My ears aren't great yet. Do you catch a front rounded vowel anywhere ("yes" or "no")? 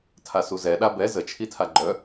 yes